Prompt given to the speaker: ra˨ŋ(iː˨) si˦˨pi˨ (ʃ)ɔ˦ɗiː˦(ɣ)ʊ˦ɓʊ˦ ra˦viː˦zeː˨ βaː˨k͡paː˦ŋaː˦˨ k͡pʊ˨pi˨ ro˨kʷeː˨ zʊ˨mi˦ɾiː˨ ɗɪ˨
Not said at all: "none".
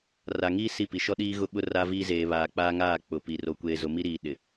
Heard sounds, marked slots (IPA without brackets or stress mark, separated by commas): iː˦, ʃ, ɣ